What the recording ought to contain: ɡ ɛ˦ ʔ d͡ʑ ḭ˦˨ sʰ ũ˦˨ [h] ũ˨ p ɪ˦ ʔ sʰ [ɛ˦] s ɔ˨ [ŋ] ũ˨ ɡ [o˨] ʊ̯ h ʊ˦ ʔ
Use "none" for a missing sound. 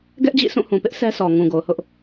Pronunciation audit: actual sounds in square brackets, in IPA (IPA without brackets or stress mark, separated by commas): h, ɛ˦, ŋ, o˨